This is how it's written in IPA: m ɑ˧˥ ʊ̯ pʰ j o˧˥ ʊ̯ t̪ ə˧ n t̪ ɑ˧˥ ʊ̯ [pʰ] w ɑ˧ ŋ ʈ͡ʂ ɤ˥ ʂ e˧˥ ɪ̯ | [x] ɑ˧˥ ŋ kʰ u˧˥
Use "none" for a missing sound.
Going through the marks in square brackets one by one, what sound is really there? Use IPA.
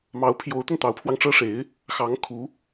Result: pʰ, x

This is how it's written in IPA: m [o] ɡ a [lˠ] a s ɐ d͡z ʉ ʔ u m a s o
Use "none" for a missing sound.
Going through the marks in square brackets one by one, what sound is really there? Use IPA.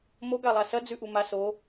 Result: o, lˠ

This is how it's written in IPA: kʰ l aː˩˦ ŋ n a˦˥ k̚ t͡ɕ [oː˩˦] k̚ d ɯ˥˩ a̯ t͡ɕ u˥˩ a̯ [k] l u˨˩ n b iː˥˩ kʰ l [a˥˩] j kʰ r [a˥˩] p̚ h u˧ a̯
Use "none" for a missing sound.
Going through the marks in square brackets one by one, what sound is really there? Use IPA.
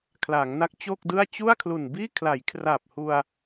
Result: oː˥˩, kʰ, a˩˦, a˨˩

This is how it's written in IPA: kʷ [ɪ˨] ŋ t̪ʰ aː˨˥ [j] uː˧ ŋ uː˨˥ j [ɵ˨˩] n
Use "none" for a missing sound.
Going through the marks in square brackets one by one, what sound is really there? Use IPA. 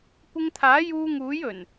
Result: ɪ˧, j, ɵ˨˩

